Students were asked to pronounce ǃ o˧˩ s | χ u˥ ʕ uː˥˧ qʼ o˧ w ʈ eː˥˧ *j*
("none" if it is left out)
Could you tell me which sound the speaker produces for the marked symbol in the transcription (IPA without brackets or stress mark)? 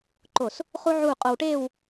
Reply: w